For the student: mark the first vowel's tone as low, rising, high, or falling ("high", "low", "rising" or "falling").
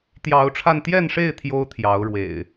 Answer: rising